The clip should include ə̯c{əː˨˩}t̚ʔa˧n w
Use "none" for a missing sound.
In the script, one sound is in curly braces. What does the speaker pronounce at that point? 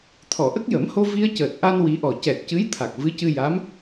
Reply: əː˨˩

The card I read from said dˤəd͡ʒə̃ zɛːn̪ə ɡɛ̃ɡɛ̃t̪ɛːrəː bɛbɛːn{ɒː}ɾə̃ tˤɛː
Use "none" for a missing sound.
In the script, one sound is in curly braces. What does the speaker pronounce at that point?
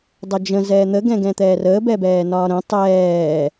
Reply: ɒː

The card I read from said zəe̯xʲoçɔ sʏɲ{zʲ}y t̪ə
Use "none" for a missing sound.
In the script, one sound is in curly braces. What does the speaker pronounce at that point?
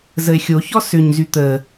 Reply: z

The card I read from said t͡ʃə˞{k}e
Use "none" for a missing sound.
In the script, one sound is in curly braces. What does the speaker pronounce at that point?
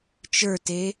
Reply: t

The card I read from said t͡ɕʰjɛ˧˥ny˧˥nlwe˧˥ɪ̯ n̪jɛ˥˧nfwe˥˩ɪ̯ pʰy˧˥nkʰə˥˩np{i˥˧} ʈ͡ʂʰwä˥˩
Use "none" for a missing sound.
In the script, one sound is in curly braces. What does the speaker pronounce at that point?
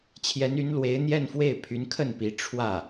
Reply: i˧˥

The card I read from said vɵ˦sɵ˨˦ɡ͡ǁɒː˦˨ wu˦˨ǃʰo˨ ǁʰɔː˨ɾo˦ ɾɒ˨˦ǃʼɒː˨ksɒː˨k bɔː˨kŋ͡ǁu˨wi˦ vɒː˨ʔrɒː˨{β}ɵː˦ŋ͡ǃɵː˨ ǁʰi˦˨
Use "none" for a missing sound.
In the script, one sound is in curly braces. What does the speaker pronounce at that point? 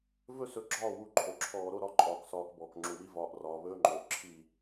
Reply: β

